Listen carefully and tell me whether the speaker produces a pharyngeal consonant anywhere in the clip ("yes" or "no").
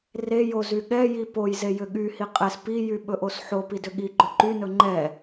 yes